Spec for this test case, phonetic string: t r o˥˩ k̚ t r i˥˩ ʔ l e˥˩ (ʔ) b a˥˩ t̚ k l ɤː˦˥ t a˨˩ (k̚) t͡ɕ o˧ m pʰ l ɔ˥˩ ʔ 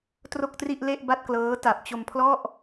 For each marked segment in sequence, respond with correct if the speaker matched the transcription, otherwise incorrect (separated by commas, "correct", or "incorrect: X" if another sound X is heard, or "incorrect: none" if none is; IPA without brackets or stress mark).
correct, incorrect: p̚